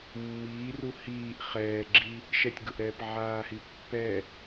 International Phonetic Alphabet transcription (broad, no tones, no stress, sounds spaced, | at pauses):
mː iː r u h iː ʔ χ ɛː ɡ͡ǁ i | ʃ ɛ tʲ ɡ ʊ ʔ ɾ ɛː p ʕ aː h i pː ɛ